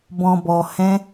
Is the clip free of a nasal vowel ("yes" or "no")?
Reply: no